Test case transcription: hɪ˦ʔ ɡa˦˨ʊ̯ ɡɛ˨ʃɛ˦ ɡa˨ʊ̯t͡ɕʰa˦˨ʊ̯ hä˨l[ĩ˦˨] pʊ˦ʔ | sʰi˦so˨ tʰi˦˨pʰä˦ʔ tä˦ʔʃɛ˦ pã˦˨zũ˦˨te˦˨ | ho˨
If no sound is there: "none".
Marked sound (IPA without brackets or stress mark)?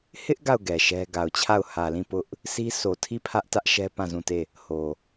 ĩ˦˨